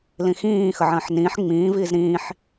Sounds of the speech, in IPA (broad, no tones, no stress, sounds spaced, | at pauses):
l ĩ x ĩː x ə ʕ ə̃ː ħ n ĩː ħ ŋ͡m ĩː v iː z ɾ ĩː ħ